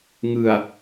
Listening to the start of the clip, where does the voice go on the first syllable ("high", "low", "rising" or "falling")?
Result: low